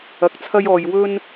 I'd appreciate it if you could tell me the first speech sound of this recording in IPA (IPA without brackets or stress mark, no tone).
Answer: ɐ